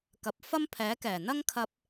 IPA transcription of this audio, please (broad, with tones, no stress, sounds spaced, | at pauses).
k ɐ˨ p̚ f ɐ˥ m pʰ ɛː˨˥ k ɛː˨˩ n̪ ɐ˥ ŋ kʰ ɐ˧ p̚